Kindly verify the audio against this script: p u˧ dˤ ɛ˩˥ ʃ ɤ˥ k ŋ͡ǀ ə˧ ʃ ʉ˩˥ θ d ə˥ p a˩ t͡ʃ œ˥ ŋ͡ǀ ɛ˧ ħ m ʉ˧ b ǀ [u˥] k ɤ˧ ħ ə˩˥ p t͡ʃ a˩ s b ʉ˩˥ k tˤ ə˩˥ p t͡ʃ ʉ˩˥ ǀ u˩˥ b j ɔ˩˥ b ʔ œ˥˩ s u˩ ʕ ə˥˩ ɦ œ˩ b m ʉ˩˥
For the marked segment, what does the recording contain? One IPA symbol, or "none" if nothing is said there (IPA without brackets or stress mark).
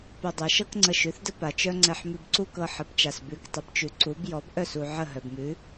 u˥